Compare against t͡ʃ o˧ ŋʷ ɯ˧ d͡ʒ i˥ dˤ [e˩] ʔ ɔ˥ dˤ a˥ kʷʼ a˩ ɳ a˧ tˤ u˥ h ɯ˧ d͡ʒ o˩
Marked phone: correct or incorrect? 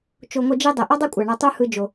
correct